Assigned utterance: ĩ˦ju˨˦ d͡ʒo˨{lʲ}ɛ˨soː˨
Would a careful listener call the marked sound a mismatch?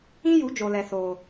yes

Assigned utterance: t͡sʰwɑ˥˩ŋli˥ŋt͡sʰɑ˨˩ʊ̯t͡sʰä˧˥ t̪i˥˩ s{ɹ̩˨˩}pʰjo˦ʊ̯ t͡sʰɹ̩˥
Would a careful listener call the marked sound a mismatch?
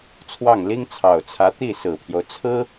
no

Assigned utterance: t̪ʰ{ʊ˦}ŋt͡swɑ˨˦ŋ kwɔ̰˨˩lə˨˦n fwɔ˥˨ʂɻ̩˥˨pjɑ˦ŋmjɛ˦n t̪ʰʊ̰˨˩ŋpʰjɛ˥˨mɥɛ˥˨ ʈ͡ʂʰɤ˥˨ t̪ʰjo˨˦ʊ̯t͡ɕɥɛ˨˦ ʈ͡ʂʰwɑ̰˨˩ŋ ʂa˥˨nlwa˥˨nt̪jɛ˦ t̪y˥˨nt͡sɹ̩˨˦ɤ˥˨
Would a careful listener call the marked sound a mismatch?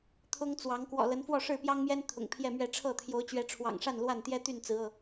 no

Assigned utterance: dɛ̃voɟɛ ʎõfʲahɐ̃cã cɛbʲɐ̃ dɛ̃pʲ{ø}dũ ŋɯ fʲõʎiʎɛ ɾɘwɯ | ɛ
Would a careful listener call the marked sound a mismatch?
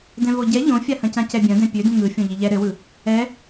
no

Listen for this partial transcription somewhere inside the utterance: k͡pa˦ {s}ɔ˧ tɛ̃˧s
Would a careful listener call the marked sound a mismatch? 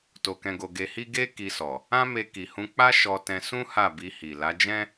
yes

